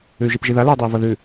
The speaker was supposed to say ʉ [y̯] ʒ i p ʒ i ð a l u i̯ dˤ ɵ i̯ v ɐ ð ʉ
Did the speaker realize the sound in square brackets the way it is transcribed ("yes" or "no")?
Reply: yes